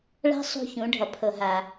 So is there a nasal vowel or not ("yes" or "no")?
yes